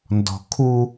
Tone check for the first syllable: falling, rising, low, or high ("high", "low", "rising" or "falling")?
low